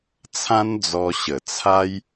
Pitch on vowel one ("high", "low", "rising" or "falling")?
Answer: high